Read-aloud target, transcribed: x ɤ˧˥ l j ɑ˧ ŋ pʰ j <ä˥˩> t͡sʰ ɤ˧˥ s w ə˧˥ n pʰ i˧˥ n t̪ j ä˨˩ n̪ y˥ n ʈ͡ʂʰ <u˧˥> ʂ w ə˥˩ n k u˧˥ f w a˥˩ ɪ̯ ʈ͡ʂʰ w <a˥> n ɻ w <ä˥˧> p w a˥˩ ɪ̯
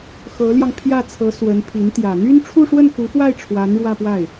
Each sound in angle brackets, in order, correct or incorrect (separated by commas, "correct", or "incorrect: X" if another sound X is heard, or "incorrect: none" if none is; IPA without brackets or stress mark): correct, incorrect: u˥˧, incorrect: a˧˥, correct